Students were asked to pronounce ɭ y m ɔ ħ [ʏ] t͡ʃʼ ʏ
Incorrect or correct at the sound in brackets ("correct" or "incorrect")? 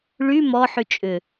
incorrect